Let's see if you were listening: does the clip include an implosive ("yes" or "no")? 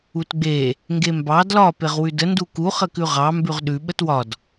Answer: yes